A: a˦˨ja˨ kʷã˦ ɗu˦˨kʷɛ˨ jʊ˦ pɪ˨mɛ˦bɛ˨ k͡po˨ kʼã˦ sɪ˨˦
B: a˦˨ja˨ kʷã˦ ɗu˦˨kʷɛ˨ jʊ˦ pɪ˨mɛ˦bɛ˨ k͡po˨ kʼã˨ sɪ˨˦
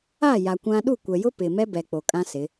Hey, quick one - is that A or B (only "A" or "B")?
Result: A